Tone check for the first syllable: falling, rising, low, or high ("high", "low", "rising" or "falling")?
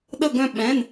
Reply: falling